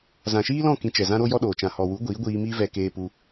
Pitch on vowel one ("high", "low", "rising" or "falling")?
low